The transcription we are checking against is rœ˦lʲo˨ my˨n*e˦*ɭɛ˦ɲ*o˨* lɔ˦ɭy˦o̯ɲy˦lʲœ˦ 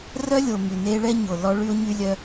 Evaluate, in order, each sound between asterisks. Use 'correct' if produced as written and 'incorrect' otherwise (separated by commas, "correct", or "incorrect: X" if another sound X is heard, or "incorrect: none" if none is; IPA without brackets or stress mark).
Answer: correct, correct